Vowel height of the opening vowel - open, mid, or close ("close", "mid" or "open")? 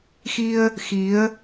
close